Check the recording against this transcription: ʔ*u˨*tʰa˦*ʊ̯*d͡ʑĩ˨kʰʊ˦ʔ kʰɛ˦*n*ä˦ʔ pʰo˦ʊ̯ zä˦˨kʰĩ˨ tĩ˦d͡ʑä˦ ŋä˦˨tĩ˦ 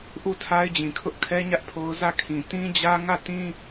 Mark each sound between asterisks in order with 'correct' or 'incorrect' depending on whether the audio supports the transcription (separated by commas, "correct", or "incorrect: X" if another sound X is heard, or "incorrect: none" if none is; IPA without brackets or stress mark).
incorrect: u˦˨, incorrect: ɪ̯, incorrect: ɲ